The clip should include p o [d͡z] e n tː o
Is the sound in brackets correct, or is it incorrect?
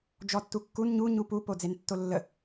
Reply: correct